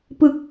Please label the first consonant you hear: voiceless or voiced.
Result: voiceless